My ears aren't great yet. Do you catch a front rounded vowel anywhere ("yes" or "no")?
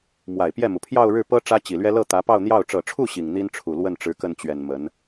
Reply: no